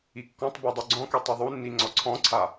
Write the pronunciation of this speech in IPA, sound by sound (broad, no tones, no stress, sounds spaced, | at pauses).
i kː ɔ̃ tˤ b o dˤ u ɡ͡ǀ ɔ̃ k e tˤ i ðˤ u nː i ŋ͡ǀ ɔ ǀʰ ɔ̃ ǀʰ a